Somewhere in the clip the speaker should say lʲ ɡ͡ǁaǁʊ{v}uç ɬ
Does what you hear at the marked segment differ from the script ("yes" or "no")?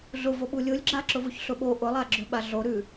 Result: no